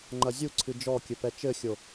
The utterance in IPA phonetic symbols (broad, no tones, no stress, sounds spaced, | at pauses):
ŋ͡ǃ ɐ zʲ u ǀʰ ɨ d͡ʒ ɔ kʲ ɘ p ɛ t͡ʃ ɘ xʲ o